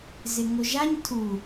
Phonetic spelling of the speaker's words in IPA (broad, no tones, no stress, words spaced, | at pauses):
zɪŋoʒaɲ tʰu